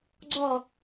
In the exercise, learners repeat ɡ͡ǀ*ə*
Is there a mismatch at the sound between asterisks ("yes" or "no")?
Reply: yes